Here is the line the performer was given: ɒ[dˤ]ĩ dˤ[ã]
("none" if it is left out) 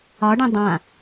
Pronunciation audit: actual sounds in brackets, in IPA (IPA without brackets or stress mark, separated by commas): ɖ, ã